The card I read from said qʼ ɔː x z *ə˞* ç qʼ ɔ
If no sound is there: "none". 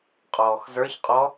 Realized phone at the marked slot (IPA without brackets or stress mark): ə˞